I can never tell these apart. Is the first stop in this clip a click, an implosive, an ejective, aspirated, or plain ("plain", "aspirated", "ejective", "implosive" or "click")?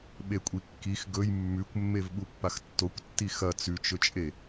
implosive